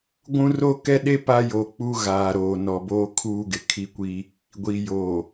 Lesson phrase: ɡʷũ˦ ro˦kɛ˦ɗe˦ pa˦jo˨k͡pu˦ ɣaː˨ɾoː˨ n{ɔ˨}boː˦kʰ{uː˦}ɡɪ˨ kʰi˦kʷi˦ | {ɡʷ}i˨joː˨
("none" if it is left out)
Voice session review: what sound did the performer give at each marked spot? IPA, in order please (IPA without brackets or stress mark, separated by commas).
ɔ˨, uː˦, ɡʷ